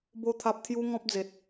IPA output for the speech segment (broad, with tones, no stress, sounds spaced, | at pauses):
b o˥˧ t̪ʰ a˦ p̚ t̪ʰ j u˦ ŋ ɔ̃˦ p̚ d͡z e˨ t̚